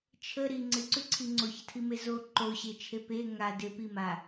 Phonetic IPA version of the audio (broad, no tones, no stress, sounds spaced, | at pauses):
t͡ʃʰ ə ɾ i ŋ͡ǀ ɪ ǀ ʉ ǀʰ i ŋ͡ǀ o ç ə tʰ i m e z o ǃ o ɕ e t͡ʃʰ e p e ŋ a d ɪ p i m a